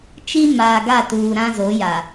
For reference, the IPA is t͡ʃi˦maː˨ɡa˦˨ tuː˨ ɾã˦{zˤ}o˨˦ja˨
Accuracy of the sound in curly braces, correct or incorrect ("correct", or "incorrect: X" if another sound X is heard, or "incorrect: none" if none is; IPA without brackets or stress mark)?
incorrect: z